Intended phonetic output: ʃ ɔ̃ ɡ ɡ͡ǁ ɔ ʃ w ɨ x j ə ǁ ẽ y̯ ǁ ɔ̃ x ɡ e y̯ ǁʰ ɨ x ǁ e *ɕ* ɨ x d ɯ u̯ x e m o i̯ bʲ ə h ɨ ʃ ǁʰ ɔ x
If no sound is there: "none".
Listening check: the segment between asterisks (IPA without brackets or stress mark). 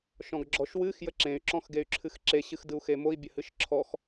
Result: ɕ